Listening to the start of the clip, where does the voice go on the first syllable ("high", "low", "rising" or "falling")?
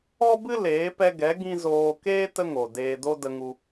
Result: high